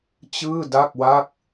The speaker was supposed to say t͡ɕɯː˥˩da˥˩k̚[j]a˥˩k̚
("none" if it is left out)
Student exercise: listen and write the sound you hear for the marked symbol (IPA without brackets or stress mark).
w